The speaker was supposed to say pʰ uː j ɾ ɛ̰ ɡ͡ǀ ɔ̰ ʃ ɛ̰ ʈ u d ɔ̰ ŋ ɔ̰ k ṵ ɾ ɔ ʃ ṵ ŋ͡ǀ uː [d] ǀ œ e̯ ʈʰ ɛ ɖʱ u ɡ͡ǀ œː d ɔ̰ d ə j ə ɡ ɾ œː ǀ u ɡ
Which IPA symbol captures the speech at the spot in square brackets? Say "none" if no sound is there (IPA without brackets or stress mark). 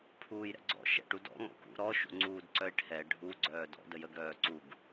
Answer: d